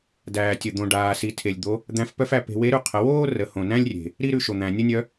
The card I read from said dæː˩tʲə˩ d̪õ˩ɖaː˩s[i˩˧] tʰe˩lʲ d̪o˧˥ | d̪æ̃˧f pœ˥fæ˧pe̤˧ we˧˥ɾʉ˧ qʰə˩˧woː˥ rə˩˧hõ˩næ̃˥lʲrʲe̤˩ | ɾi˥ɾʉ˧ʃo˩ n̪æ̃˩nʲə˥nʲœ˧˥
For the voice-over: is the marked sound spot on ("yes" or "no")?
yes